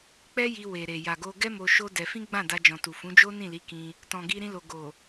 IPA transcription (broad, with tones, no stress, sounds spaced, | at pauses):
k͡p ɛ˦ j i˧ w e˨ ɾ e˨ j a˨ ɡ o˧ ɡ ɛ˦ m o˧ ʃ o˦ d ɛ˧ f ĩ˦ ɡ͡b ã˦˨ d a˧ d͡ʒ ɔ̃˨ t u˨ f ũ˨˦ d͡ʒ o˦ n ĩ˦˨ l i˨˦ k ĩ˧ | t ɔ̃˨ ɡ i˧ ɾ ĩ˧ l o˨ ɡ o˨